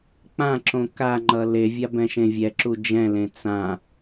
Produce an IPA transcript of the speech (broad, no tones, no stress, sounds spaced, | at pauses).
k͡p ã ǁ õ k a ŋ͡ǃ ʌ l e vʲ a b ɛ̃ ʃ ẽ vʲ ɛ ǁ u d͡ʒ ɛ̃ l ẽ t͡s ã